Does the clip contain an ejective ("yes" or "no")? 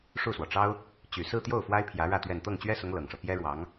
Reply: no